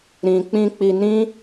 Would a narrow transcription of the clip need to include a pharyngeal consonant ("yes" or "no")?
no